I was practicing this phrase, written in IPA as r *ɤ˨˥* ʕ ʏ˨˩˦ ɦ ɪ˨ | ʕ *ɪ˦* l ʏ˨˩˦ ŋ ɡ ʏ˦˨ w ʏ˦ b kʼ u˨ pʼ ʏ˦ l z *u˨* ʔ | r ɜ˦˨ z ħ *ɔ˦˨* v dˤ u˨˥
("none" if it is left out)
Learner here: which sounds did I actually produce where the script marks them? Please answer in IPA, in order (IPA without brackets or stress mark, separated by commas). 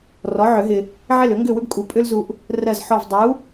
ɔ˨˥, ɪ˦˨, u˨, ɔ˦˨